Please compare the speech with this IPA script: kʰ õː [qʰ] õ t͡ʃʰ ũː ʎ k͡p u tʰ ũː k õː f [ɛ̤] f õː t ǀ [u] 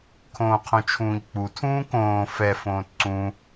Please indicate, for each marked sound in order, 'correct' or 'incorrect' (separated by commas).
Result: correct, incorrect, incorrect